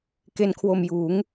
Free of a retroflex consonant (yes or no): yes